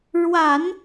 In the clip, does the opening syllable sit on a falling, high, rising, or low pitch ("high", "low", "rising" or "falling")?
low